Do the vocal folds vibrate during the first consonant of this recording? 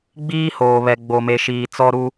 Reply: yes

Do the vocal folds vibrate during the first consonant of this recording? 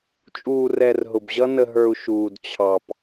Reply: no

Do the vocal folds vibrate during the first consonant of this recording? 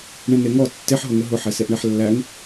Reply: yes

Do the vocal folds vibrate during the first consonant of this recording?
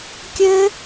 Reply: no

